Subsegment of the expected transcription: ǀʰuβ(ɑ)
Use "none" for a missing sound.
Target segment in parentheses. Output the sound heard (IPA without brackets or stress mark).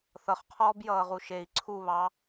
ɑ